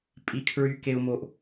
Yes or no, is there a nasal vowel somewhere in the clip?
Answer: no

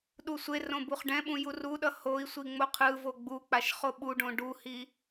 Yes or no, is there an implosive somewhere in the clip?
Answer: yes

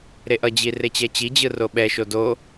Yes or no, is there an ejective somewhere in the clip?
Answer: no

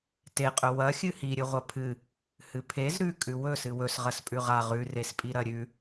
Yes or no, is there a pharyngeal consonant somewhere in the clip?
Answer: no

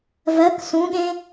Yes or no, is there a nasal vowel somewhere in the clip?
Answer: yes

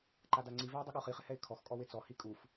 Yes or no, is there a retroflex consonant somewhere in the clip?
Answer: no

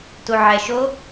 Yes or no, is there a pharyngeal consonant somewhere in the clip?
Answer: yes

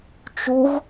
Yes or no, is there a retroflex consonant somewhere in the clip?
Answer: no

